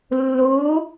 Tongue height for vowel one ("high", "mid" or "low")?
high